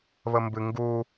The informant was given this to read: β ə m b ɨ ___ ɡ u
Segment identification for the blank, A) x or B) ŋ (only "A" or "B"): B